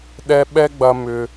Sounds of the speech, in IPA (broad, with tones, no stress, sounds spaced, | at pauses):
ɗ ɛ˦ ɓ ɛ˦ ɡ͡b ɐ˧ m ʏ˧